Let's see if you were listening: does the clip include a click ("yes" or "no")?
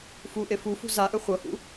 no